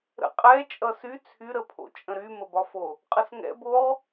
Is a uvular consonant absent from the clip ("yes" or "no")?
no